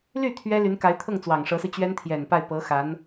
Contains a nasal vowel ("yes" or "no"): no